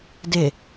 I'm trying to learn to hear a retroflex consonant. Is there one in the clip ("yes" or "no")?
no